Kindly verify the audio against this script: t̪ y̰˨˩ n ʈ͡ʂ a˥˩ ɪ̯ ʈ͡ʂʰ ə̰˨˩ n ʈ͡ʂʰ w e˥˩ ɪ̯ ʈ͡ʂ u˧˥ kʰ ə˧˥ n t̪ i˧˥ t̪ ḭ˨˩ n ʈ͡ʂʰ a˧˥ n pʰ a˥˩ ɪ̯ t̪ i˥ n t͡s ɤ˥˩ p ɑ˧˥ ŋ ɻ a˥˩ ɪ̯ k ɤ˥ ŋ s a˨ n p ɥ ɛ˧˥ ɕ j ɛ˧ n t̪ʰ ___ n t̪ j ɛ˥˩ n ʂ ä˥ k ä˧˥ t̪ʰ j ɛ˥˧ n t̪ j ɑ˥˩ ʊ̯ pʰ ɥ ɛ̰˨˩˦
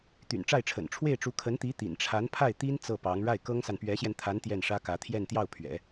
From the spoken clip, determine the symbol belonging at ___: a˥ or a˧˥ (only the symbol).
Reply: a˧˥